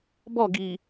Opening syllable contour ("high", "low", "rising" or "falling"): falling